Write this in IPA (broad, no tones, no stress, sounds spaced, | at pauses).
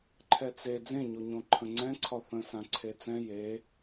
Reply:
ǃʰ ɛ t͡s e d͡z ẽ ɲ o ɲ õ ǃʰ ə̃ ŋ͡ǀ ɛ̃ ǀʰ ɒ θ ə̃ s ã ǀʰ e t͡s ɛ̃ j e